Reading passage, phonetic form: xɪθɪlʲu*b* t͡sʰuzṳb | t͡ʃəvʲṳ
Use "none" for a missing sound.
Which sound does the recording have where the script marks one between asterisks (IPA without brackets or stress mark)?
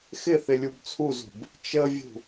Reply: b